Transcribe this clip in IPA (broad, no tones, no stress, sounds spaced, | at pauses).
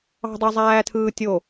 ɑ̤ dˤ ø zˤ æː tʰ ɯː tʲ o